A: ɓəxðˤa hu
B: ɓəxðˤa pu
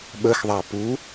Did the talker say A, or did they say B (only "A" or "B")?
B